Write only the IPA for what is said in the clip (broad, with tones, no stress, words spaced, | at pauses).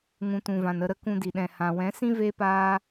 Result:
ŋũ˨tũ˨vã˨n ə˧ɾə˧ kũ˧di˨ɗɛ̃˨ hã˨wɛ̃˨˦sĩ˦ ve˦paː˦